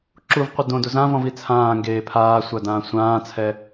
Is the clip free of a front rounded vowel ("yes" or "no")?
yes